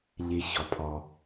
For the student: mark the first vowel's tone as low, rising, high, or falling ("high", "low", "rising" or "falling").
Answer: low